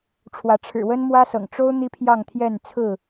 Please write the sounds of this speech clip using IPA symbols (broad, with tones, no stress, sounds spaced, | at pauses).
ʈ͡ʂʰ w ä˨˦ ʈ͡ʂʰ ɻ̩˨˩ w ə˦ n m w ä˦ s ɤ̰˨˩ ŋ ʈ͡ʂ o˦ ʊ̯ n̪ i˦ pʰ j ɑ˥˨ ŋ t̪ʰ j ɛ˥˨ n t͡sʰ ɹ̩˥˨